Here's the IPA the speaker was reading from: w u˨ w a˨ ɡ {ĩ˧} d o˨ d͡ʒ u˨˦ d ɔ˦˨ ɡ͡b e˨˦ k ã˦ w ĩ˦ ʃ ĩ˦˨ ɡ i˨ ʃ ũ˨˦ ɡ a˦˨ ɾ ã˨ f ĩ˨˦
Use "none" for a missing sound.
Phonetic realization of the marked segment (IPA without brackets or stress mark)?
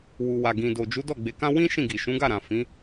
ĩ˨